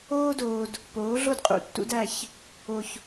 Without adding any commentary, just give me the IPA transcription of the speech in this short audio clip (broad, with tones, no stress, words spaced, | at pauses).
oː˦doː˨d | poː˨˦ɮo˦dqʼṵ˨ tːṵ˦dæ˦˨ç | o˨ç